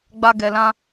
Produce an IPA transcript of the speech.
ɡ͡b a˨ ɡ ɛ˨ l ã˦

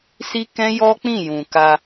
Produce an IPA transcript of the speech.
s i˦ k ɛ̃˦ j ɔ˦ k͡p ĩ˦˨ j ũ˨ k a˧

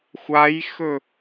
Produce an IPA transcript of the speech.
xʷ a j x ɵ

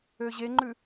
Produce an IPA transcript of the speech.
ø ʑ e ŋ͡ǃ ʉ

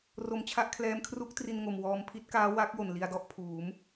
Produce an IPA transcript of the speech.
r o˧ m t͡ɕʰ a˥˩ ʔ kʰ l ɛː˦˥ m kʰ r u˦˥ k̚ t r i˧ n ŋ o˨˩ m w ɔː˧ m pʰ i˦˥ t̚ k aː˦˥ w a˦˥ k̚ j o˨˩ n l i˧ a̯ d ɔ˥˩ ʔ pʰ uː˩˦ m

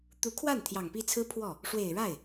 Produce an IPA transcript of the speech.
t̪ u˧˥ kʰ w a˥˩ n t̪ʰ j ɑ˨˩ ŋ p i˥˩ t͡sʰ ɹ̩˥ pʰ w ɔ˥˩ | ʂ w e˨˩ ɪ̯ ɻ a˥˩ ɪ̯

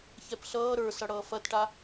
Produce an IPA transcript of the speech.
ç ɛ p ɬ ʌː ɾ ə˞ s ʌ ɽ ʌː f ɐ t ʈ a

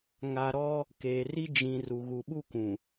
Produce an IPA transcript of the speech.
ŋ a˨ ɾ ɔ˦ | k eː˨ r i˦ d͡ʒ ĩ˨ r u˨ ɣ u˨ ɓ u˦ k ũ˨

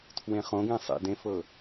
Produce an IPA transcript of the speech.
tʰ w ẽ χ õ ɡ ẽ sˤ ḛ d ẽ f ɤ

